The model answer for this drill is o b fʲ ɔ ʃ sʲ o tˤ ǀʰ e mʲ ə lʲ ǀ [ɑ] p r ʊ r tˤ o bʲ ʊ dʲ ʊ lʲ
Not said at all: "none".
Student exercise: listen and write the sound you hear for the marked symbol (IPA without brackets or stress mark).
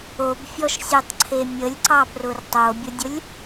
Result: ɑ